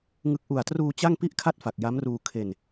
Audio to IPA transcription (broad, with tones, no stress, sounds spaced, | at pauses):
ŋ ɯ˦˥ k̚ ʔ u˨˩ a̯ t r uː˧ t͡ɕ a˥˩ ŋ p i˥˩ ʔ kʰ a˥˩ t̚ f a˨˩ k̚ j a˦˥ m r uː˧ kʰ e˧ n